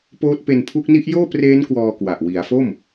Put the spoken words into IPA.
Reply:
p oː˦˥ t̚ p e˧ n pʰ u˦˥ k̚ n i˦˥ ʔ j oː˥˩ p r eː˦˥ n k w ɔː˧ k w a˨˩ ʔ w i˩˦ a̯ f o˥˩ m

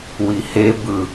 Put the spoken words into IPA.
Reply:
w i h e b ɯ

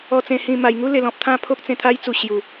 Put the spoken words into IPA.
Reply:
ɔ˨˩ t͡s ẽ˨˩ h ĩ˨˩ m a˨˩ j ŋ u˦ l e˨˩ l ɔ̃˨ p̚ t̪ʰ ã˥˧ pʰ o˦ k̚ t͡s ẽ˧ t̪ʰ a˦ j t͡s u˨˩ ɕ j u˨˩

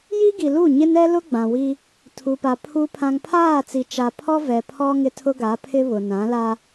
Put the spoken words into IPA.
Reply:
j i˦ ɡ i˨ l u˦˨ ɲ ɪ˦ n ɛ˦ l ʊ˦ ɡ͡b ã˨ w i˦ | tʰ u˨ p a˨ pʰ u˨ pʰ ã˨ ŋ pʰ aː˦˨ t͡s i˨ t͡ʃ a˨ pʰ ɔ˦ v ɛ˨ pʰ ɔ˦ ŋ ɪ˦ tʰ ʊ˦ ɡ a˨˦ pʰ ɪ˦ β ʊ˨ n ã˨˦ l a˦

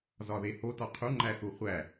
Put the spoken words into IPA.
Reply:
z ɒ ð e h o t ɒ qʰ u ŋ͡ǃ æ θ u χʷ æ

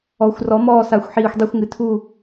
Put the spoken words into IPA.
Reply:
ɔ˨˩˦ xʷ r ɔ˨˩˦ m ɔː˦˨ s a˨˩˦ xʷ ħ iː˨˩ xʷ dˤ i˦˨ xʷ ŋ ɨ˨˩ tʰ u˦˨

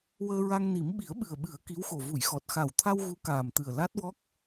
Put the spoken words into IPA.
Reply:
w əː˧ ɹ a˧ ŋ n i˨˩˦ m ɓ i˨˩˦ ə̯ ɓ ɨ˨˩ ə̯ ɓ ɨ˨˩˦ ə̯ k i˧˥ w x o˨˩ v u˨˩˨ j x ɔ˨˩ t̚ x a˨˩ w t̪ʰ a˧ w ɣ u˧˥ k aː˨˩ m t̪ ɨ˨˩ ə̯ l a˦˥ t̚ w ɔ˦˥ k̚

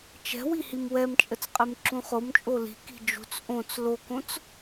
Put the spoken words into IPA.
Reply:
t͡ʃ ɛ̤ w i h i m w ɛ m t͡ʃʼ ə t͡s qʼ e m ǁ ũ χ o m t͡ʃʼ o l i̤ k i̤ d͡ʒ ṳ t͡s ʔ õ t͡s l o k õ t͡s

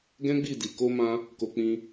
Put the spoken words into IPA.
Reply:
ɡ ɛ̃˦ ɡ͡b i˦˨ d i˨ k o˧ m ã˧ | k o˧ k͡p ĩ˧

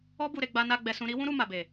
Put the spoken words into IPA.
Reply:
ɔ˦ b u˧ ɾ e˧ ɡ͡b a˧ n a˧ ɡ͡b ɛ˧ s ũ˧ ɾ i˦ w ũ˦ ɾ u˧ m a˨ b e˨

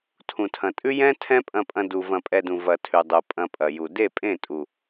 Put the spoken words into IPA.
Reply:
tʰ ũ˨ tʰ ɐ̃˨ tʼ ʉ˦ j ɛ̃˦ tʰ ɛ̃˦ pʼ ɐ̃˧ pʼ ɐ̃˧ d u˨ v ɐ̃˧ pʼ ɛ˧ d ũ˨ v ɐ˨ tʰ ʉ˨ dˤ u˨ pʼ ɐ̃˧ pʼ ɐ˨ j u˨ d e˦˨ pʼ ẽ˦˨ tʼ u˨

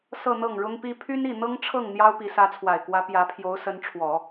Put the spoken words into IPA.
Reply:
s ɤ˥˧ n̪ ɤ˥˩ ŋ ɻ ʊ˥ ŋ p i˥ pʰ y˥ n i˥˩ n̪ ɤ˥ ŋ ʈ͡ʂʰ ɤ˥˩ ŋ n̪ j ɑ˥ ʊ̯ p i˧˥ s ä˧˥ t͡sʰ w a˨˩ ɪ̯ k w ä˧˥ p j ä˧˥ pʰ j o˧˥ ʊ̯ s ə˧˥ n ʈ͡ʂʰ w ɔ˨˩˦

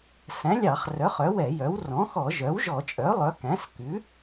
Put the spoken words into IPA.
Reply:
s æ̃˩˥ lʲ ɑ˧˩˧ χ r œ˩˥ χ œ˩˥ w ɛ˧˩˧ j œ˩˥ w r ɔ̃˩˥ x ɔ˧˩˧ ʒ œ˩˥ w ʒ ɔ˧˩˧ t͡ʃʼ œ˩˥ lˠ œ˩˥ k æ̃˩˥ s k ʉ˩˥

